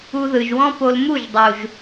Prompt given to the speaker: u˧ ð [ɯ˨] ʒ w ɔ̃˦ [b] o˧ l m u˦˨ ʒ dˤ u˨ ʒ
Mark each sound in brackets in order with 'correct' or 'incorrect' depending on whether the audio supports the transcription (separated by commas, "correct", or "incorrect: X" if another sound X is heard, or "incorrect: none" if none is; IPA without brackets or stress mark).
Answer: correct, incorrect: p